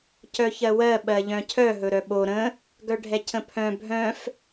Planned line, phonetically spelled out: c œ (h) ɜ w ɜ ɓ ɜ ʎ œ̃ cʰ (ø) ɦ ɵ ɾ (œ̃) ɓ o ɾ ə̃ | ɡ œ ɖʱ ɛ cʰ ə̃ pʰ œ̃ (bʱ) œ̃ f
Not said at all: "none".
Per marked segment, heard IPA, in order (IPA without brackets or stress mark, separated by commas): ç, œ, œ, bʱ